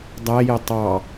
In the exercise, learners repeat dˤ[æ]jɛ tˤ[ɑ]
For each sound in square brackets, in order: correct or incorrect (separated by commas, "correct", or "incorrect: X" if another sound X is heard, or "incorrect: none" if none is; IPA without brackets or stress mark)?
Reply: correct, correct